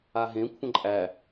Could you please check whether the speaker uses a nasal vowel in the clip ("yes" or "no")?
yes